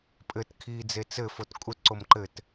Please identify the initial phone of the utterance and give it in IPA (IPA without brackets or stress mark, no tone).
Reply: pʼ